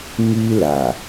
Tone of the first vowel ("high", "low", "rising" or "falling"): high